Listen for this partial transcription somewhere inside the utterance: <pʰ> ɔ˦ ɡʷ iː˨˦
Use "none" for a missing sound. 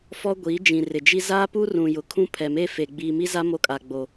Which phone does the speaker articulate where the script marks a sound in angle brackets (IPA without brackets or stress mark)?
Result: f